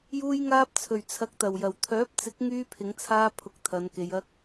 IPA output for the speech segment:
j uː˧ j ŋ aː˧ p̚ t͡sʰ ɵ˨˩ ɥ t͡sʰ ɐ˨ k̚ t̪ ɐ˨˩ w j ɐ˨˩ w t̪ʰ œː˨˥ p̚ t͡s ɪ˨˥ k̚ ŋ yː˧ pʰ ɪ˨˧ ŋ t͡sʰ aː˧ pʰ ʊ˨˥ k̚ t̪ʰ ɐ˨ n k e˨ j ɐ˨ k̚

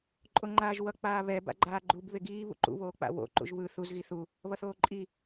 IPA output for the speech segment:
ǃʼ o ŋ͡ǃ aː ʒ w ʌ k͡p aː β ɛ b a̰ ɡ͡ǃ aː ɡ͡ǃ u b β e ɡ iː β ṵ ǃ ṵ β oː k͡p a̰ w o̰ ǃ ṵ ʒ β ɯ θ u z ɣ i θ u | β ʌ θ oː ǃʼ i

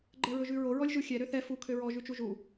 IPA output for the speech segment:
ɡ͡ǃ ɛ ɹ ɵ ʒ ʉ ɹ o ɹ ɔ lʲ ʒ u xʲ ɛ ɾ ø θ ɛ f u kʰ ø ɹ ɔ ʒ ʉ t͡ʃ u ʒ u

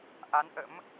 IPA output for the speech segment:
ʔ a˨˦ n ʔ ə̰˧˥ m

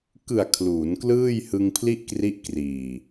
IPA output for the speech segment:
k ɯ˨˩ a̯ kʰ l uː˩˦ n k l ɯː˥˩ j h ɯ˧ ŋ pʰ l i˥˩ ʔ k r i˦˥ ʔ k r iː˨˩

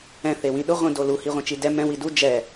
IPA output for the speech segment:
ɛ̃ θ e w ĩ ɗ ʊ ʁʷ ĩ d o l u h i ʁʷ ẽ t͡ʃ i d ɛ m ɛ̃ w i d u d͡ʒ ɛ

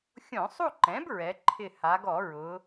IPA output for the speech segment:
xʲ õ˧˩˧ sˤ u˥˧ ǃ ɛ̃˩˥ b ɹ ɛ˩˧ ǃʰ ɪ˧˩ h a˩˧ ɡ ɔ˧˩˧ ɹ ʊ˩˧

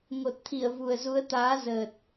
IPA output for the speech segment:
ŋ o˨˩ t̚ t̪ʰ i˧˩ ə̯ v u˨˩ ə̯ z u˨˦ ə̯ t̪ aː˨˦ z əː˨˩ t̚

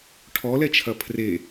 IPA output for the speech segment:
ʈʰ ɔ l ɛ t͡ʃʰ ɐ pʰ r e

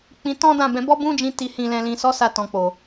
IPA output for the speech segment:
k͡p ĩ˧ t ɔ̃˦ d ã˦˨ b ɛ̃˧ b ɔ˦ b ũ˦ d͡ʒ ĩ˧ t i˨ h ĩ˨ l ɛ̃˨ l ĩ˨ s ɔ˨˦ s a˧ t ɔ̃˨ k͡p o˨

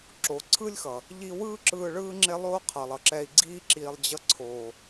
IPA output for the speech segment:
ǁ oː˨ ǀʰ ɯ˦ lʲ x ʌ˨ | ʎ i˧ w ɯː˦ ǁ ɯː˧ ɭ ɯː˦ ŋ͡ǁ e˦ lˠ oː˦ qʰ ʌ˨ lˠ ʌ˨ ǁ ɛ˧ i̯ ɡ͡ǀ iː˧ ǁ iː˨ lˠ d͡ʑ ʌ˧ ǀʰ oː˨

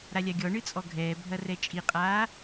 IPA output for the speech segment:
ɾ a lʲ a ɡʲ ɔ ɳ ɨ t͡sʼ ɔ ɡʱ ɛː bʱ ɐ r ɛ t͡ʃʼ i qʼ aː

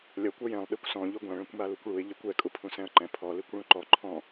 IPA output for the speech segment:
lʲ ʌ kʷ ʌ j ɛ̃ lˠ ɗ ɛ kʷ s ɔ̃ ʎ u ɡʷ ã ɭ ɛ̃ kʷ m a l u kʷ ɭ u ɪ̯ ʎ i kʷ ɛ kʼ u pʰ ũ s ɛ̃ ə̯ ǃ ɛ̃ pʰ ɔ l i kʷ ɭ ũ ǃ ɔ ǃʰ ɔ̃

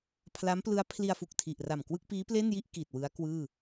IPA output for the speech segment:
pʰ l a˦˥ m p l ɯ˦˥ a̯ pʰ l i˧ a̯ f u˨˩ k̚ tʰ i˨˩ ʔ r a˨˩ m k w ɯ˥˩ k̚ p iː˦˥ p l e˥˩ n j i˥˩ ʔ k i˨˩ t̚ w ɯ˦˥ a̯ k w ɯː˥˩

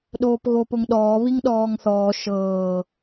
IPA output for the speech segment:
ɗ oː p ɣ o p ʊ ŋ ɗ ɔː β i ŋ ɗ ɔː ŋ θ ɔː ʃ ɤː

